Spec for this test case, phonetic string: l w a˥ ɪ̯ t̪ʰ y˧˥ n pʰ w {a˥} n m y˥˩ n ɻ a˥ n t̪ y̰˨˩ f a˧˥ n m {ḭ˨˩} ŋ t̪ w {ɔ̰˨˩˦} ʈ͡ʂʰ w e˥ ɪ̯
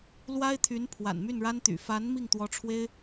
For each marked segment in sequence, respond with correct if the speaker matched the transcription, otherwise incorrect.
incorrect: a̰˨˩, incorrect: i˥˩, incorrect: ɔ˧˥

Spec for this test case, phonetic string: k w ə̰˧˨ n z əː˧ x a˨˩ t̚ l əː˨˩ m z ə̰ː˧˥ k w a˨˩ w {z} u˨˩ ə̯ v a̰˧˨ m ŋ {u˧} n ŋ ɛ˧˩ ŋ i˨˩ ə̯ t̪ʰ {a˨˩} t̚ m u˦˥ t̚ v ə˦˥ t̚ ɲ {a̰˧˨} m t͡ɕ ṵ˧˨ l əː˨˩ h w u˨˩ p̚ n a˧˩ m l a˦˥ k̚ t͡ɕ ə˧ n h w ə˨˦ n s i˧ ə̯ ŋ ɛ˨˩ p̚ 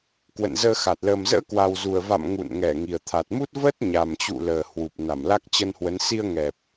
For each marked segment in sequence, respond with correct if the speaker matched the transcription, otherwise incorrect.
correct, incorrect: ṵ˧˨, correct, incorrect: a˨˩

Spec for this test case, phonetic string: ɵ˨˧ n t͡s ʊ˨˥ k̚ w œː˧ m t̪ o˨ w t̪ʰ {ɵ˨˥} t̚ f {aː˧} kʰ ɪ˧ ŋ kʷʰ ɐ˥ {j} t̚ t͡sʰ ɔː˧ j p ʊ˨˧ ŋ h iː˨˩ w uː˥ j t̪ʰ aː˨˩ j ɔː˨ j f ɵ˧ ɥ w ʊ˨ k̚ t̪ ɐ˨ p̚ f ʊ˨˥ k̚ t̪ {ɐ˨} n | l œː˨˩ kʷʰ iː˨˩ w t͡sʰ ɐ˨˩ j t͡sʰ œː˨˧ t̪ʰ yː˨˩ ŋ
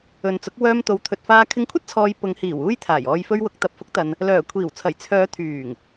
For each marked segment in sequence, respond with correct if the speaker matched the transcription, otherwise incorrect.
incorrect: ɵ˨, correct, incorrect: none, correct

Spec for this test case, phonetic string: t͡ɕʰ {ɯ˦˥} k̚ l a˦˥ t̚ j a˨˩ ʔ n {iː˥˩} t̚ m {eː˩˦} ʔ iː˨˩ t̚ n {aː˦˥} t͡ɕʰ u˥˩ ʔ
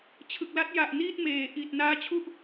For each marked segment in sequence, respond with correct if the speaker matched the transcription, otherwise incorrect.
incorrect: ɯ˨˩, correct, correct, correct

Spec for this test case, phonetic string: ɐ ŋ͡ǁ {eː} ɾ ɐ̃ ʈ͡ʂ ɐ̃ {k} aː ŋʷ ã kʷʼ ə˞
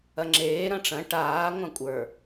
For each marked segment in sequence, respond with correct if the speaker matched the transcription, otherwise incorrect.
correct, incorrect: ʈ

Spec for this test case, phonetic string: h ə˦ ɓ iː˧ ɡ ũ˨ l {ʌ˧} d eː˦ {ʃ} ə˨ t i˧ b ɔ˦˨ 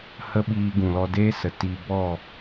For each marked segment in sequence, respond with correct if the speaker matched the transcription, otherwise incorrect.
incorrect: ɔ˧, incorrect: s

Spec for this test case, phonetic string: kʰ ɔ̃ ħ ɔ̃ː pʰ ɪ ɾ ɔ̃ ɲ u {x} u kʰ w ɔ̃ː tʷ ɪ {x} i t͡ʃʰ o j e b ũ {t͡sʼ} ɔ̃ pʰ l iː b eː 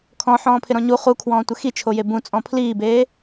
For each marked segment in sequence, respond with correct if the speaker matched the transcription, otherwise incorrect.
incorrect: χ, correct, correct

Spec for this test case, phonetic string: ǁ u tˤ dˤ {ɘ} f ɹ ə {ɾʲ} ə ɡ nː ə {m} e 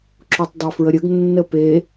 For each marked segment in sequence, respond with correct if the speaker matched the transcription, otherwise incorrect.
incorrect: e, correct, incorrect: p

